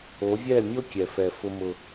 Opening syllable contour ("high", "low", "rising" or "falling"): rising